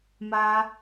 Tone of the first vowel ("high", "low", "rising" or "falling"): high